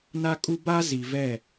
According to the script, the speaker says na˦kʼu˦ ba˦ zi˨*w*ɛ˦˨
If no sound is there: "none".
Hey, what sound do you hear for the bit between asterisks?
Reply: v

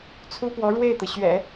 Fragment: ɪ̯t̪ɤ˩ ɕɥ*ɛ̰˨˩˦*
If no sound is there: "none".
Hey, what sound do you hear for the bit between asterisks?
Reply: ɛ̰˨˩˦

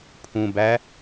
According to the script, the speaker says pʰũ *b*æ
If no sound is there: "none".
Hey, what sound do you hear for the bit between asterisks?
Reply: b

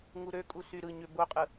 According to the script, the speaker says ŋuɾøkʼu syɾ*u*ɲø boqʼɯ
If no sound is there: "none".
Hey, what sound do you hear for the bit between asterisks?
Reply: ɯ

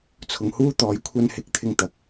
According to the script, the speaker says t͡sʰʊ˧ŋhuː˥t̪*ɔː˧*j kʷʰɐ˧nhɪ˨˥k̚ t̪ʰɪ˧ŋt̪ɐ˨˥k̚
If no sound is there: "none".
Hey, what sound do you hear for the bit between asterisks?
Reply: ɔː˧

